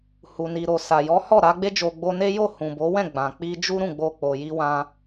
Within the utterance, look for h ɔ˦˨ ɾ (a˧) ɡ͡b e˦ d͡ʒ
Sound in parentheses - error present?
no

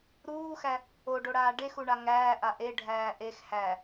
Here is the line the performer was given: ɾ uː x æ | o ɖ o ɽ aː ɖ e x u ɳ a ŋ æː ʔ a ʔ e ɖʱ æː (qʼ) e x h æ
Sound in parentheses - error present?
yes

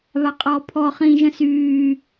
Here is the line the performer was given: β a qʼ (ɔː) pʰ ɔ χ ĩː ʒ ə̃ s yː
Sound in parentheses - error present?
no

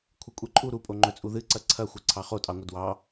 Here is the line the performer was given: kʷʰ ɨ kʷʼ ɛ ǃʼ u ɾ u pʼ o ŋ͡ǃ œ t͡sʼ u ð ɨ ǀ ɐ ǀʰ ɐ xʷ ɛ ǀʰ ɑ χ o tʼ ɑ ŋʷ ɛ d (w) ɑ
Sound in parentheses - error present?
no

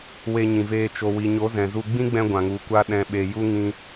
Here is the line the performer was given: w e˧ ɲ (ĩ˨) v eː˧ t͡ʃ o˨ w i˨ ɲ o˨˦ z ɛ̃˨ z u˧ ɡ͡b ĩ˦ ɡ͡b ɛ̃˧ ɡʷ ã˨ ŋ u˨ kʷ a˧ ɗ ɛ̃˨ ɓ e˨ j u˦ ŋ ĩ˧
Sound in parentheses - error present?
no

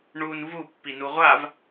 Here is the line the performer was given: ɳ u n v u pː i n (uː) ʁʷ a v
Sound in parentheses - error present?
yes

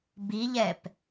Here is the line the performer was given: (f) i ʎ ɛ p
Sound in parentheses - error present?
yes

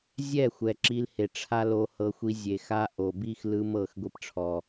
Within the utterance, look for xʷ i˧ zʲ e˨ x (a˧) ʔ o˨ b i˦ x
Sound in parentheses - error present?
no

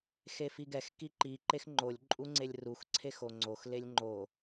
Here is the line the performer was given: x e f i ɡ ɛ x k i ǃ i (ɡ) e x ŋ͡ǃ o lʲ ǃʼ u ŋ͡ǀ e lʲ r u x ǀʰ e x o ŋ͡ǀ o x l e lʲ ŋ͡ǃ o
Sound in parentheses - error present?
yes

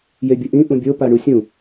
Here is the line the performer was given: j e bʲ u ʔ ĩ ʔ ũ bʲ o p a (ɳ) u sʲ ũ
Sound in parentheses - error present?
no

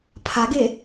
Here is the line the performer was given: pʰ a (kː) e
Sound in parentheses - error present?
yes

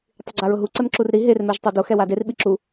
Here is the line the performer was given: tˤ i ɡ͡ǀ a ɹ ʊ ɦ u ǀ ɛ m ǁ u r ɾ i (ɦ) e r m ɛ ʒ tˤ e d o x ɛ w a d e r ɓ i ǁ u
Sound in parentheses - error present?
no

